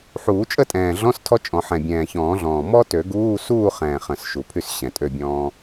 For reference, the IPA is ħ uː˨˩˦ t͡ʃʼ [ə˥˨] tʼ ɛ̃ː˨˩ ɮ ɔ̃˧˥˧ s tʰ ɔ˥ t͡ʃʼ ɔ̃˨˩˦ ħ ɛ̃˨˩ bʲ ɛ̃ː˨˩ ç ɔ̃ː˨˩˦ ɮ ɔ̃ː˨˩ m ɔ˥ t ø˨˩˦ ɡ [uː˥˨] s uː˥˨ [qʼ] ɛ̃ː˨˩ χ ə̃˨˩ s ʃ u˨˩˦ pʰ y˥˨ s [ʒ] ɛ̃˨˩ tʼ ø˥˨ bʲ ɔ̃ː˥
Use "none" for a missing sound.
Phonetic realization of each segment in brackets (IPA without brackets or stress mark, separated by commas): ə˥˨, uː˧˥˧, χ, ɕ